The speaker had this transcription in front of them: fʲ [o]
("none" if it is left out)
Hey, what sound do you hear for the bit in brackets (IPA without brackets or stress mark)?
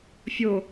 o